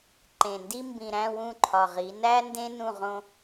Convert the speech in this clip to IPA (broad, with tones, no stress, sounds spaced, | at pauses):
ǃ ẽ˨ n d i˦ m b ĩ˨ ɾ æ̃˦˨ w ũ˦˨ ǃʰ ɒ˨ ʁ i˨˦ n æ˦ n d ẽ˦ n ũ˦˨ ʁ õ˦